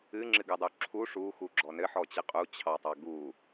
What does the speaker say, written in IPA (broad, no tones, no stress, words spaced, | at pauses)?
ɨŋ͡ǁɨɡɨdˤu ǁʰu ʂuxuɡ͡ǁɔ nɘħɔt͡ɕɨ qʼut͡ɕʰɑtˤɑ ɡu